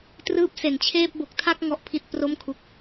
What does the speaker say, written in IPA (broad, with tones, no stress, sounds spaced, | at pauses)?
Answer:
t r ɯː˦˥ p̚ s e˩˦ n t͡ɕʰ eː˥˩ p̚ b o˨˩ k̚ tʰ a˥˩ k̚ ŋ ɔ˥˩ ʔ pʰ i˥˩ t̚ p r o˥˩ m kʰ u˦˥ k̚